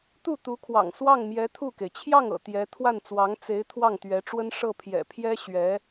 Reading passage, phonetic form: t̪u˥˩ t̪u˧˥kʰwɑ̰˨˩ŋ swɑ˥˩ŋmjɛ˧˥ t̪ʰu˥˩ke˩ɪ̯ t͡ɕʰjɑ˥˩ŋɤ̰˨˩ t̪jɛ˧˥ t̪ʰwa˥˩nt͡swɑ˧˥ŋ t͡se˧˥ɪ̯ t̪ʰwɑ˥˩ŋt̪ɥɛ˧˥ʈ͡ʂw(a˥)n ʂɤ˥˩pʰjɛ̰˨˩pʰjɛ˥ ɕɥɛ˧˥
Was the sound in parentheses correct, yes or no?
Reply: no